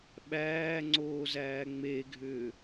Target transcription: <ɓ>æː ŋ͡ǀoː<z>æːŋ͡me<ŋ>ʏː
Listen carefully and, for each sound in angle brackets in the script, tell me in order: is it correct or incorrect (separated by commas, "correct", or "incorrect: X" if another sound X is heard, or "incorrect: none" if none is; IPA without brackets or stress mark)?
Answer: correct, correct, incorrect: ɡʱ